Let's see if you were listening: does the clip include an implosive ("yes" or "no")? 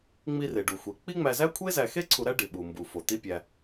yes